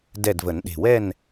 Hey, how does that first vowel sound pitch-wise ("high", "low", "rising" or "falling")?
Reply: falling